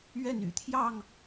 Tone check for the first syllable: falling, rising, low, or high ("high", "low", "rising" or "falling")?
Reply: falling